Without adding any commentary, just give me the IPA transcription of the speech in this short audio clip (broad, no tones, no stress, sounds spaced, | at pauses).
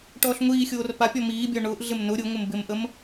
ʈ ɔː ɬ ŋʷ iː xʲ oː r p a pʲ ɔ m iː bʲ ɔ ɳ ʊː ʔ ɮ ɪ m n ʊ ɾʲ ʊ ŋʷ ɪ m b ɪ m ʔ ə m